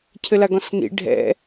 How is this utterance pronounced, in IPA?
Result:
cʰ ɘ l a ɡ ɔ̃ s n ḭ ɖʱ ɛ̰

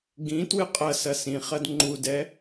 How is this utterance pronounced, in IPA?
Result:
ɡ ĩ t w ɨ qʼ ɐ s ɐ s ĩ χ ɐ d ŋ͡ǃ u d ɛ

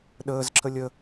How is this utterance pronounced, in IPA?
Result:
ɗ əː z ǁʰ ə lʲ ə

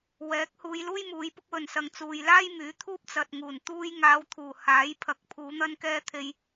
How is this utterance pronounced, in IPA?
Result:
w ɛː˨˥ k̚ h uː˨˧ j l uː˥ j m uː˨˧ j p ʊ˥ k̚ w ɵ˨ n s ɐ˨ ŋ t͡s uː˨ j l aː˥ j m yː˨˥ t̪ʰ uː˥ p̚ t͡s ɐ˨ t̚ ŋ uː˨˩ n t̪ uː˧ j ŋ aː˨˧ w t̪ʰ uː˨˩ h aː˨˥ j pʰ ɐ˨˥ k̚ pʰ uː˨˧ n̪ ɐ˧ n k ɛː˧ t̪ʰ e˨ j

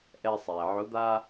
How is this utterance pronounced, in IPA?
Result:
ʔ ɛ˧ sˤ ɛ˩ ʕ ʊ˧˥ d̪ a˥

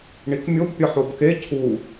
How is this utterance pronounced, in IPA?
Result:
ɳ i k mʲ o b pʲ ɒ ħ o b k e cʰ u

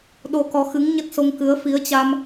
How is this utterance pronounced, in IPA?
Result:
ɗ o˧ k ɔ˨˦ x ɨ˨˦ ŋ ɲ ə˦˥ t̚ s o˧ ŋ k ɨ˨˦ ə̯ f i˨˦ ə̯ t͡ɕ a˧ m

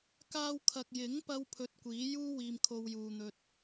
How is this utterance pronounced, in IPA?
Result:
k aː˧ w kʰ ɐ˨ k̚ j ɪ˨˥ ŋ p ɐ˥ w pʰ ɵ˧ t̚ kʷ iː˨˥ j uː˥ w iː˧ m kʰ o˧ w j uː˨ n̪ ɵ˧ t̚

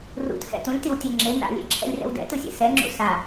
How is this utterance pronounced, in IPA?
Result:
r ṵ t h ɛ̰ t ũ lʲ t i w tʲ ɛ ŋ͡ǁ e n a̰ lʲ ḛ ǁʰ ɛ̰ lʲ r ɛ̰ w d ɛ̰ t ɯ sʲ ḛ s ɛ ŋ͡ǁ ṵ s a

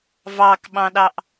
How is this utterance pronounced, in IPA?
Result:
v ɑ k ɓ ɑ̃ ɗ ɑ ʔ

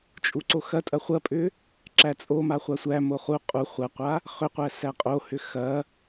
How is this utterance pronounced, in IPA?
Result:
t͡ʃʼ u ǀ o x ɐ tʼ ɐ χʷ ɐ pʼ ʏ | ǁ æ t͡sʼ o m a χʷ a sʷ æ m o χ u qʼ u χʷ ɐ qʷ a | χ ʏ qʷ æ s æ qʼ o h ʏ x ɐ

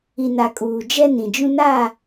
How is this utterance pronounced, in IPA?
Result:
i˨ n a˨ kʼ uː˨ d͡ʒ ɛ˦ n ĩ˨ d͡ʒ ũ˦ n a˦˨

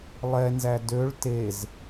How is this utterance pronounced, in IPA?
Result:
lˠ ɛ n z æ d ø ɭ t e z

